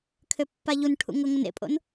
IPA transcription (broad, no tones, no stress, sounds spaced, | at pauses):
kʰ ø pː a ʎ u n ʈʰ ṵ ŋ ɤ ŋ o n ḛ pʼ o̰ n